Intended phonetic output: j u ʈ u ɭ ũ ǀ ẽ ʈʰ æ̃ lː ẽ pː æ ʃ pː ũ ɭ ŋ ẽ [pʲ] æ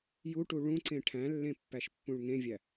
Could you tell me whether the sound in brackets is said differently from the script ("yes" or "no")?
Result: yes